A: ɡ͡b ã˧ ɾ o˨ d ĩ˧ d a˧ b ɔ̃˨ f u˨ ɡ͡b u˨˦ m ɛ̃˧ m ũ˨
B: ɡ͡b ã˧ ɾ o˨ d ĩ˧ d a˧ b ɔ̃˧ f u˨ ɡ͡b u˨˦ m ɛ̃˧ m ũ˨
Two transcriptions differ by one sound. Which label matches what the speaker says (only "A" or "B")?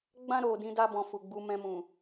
A